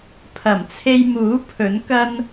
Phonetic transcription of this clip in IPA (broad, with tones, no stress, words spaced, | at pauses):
pʰɐ˨˩m t͡sʰe˧jmuː˨˥ pʰɵ˨˥nkɐ˥n